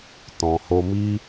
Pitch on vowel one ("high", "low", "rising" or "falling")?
low